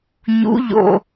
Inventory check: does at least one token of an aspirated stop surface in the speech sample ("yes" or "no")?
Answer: no